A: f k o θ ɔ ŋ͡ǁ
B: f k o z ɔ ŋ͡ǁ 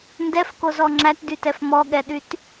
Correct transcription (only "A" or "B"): B